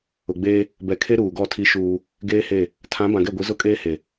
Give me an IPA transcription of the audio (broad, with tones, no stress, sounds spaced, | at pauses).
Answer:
ʊ˨ ɡ͡b eː˦ | b ɛ˨ kʰ e˦ ɾ uː˨ ɡ ɔ˦˨ tʰ i˦ ʃ uː˦ | ɡ eː˦ h e˦˨ | tʰ ã˨˦ b ã˨ ɡ ɛ˦˨ ɡʷ i˨˦ z ʊ˦ kʼ eː˦ h e˨